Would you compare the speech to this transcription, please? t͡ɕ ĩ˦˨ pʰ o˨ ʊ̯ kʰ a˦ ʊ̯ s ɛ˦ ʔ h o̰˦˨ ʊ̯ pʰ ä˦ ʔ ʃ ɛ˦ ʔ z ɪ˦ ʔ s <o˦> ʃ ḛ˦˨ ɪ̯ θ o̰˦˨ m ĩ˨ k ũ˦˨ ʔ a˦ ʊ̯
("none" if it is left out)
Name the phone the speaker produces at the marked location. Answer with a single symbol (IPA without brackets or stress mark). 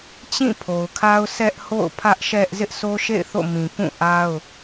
o˦